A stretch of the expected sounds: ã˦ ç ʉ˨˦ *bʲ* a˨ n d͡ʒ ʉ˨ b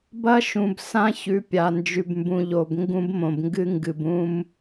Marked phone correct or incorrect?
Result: incorrect